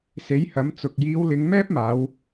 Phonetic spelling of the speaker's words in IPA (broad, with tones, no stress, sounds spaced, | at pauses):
s e˨˥ j h ɐ˨˥ m t͡s ʊ˨ k̚ j iː˨˧ w l ɪ˨˧ ŋ m ɛː˥ p̚ m aː˨˧ w